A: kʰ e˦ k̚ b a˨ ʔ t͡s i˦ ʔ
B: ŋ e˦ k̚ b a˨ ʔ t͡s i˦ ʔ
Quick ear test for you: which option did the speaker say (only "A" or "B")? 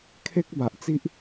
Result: A